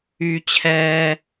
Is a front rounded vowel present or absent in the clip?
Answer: present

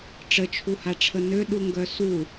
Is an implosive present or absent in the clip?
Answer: present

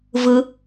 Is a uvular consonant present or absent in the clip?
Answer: absent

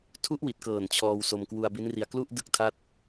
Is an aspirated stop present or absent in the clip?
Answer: present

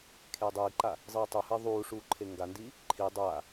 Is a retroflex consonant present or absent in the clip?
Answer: present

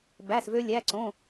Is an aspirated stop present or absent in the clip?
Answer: absent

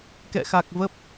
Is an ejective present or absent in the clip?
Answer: absent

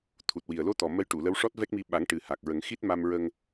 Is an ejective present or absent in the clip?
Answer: absent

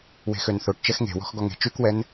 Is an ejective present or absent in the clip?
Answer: absent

